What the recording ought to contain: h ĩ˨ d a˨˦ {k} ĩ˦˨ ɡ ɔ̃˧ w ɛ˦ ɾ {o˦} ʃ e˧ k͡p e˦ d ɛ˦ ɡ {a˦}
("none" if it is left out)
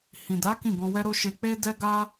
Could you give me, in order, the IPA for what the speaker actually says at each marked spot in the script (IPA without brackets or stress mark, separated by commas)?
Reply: k, o˦, a˦